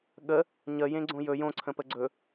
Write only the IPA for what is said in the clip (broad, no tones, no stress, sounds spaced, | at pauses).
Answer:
ɠ ə | ɲ ə j ẽ ɡ͡ǀ õ j ɵ j õ ǀʰ ə̃ p ə ɡ͡ǀ ɵ